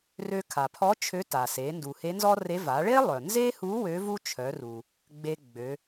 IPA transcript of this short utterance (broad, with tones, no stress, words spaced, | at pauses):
rø˧kʰa˩pʰɔ˧˥ t͡ʃʰø˧˥ta˩se˩˧ ndu˩he˧˥nzɔ˥re˧˥ va˩˧ɭe˥lˠœ˩ nze˥hu˧˥ wø˧˥vu˥t͡ʃʰœ˩˧ru˩ | ɡ͡be˧ɡ͡bø˩˧